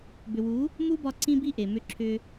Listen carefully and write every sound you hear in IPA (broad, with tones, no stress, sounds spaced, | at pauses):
b ʏ˨ w u˨˦ | m u˦ b ɒ˧ ǀ ĩ˦ b i˦ ʔ e˨ m ʏ˧ ǁʰ ʏ˧